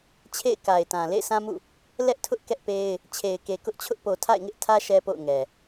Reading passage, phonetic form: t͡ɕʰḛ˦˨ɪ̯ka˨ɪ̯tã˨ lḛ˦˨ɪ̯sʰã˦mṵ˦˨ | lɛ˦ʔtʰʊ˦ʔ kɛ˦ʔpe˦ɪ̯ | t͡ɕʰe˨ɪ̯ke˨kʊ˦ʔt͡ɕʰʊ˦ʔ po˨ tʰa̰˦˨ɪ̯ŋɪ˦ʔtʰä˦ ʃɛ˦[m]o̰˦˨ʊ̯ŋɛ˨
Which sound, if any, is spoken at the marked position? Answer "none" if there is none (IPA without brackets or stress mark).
p